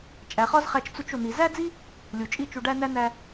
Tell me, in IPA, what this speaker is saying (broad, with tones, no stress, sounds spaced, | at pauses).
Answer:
t͡ʃʼ æ˨ χ ɒ˦ z χ æ˧ t͡ʃ t͡s u˧ t͡ʃ o˨ n̪ i˨ z æ˦ d͡z i˦ | lʲ u˨ t͡ʃʼ i˦˨ t͡ʃ u˧ ɖ æ˦ n æ˦ n æ˧